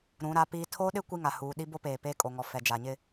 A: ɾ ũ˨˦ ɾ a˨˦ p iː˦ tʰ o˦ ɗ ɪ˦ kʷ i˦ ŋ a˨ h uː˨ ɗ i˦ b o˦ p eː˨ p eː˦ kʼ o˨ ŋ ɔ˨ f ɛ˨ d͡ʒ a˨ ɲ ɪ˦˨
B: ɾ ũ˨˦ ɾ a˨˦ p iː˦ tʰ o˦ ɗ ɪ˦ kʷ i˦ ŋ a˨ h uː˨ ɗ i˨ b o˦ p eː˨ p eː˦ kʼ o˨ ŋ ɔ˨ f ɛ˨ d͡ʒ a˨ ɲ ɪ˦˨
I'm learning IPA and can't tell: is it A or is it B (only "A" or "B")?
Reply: A